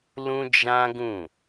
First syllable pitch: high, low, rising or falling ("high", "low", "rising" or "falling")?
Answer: high